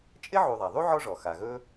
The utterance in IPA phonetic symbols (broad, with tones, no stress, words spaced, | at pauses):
t͡ʃʼɪ˥ʕu˨ðˤa˩ ðˤu˥ʕɔ˦ʐɔ˩ xa˩ɣɵ˦